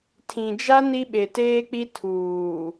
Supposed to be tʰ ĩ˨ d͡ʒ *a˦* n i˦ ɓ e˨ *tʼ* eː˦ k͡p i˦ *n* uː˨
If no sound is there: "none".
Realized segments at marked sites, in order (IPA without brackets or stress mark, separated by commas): a˦, t, tʰ